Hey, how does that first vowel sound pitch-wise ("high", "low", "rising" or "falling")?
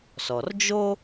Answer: low